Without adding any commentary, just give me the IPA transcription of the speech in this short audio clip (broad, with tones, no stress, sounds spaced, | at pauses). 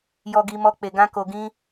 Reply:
j ɔ˨ ɡ i˨ m ɔ˨ k͡p e˨ ɡ ã˧ k o˨ ɡ ĩ˧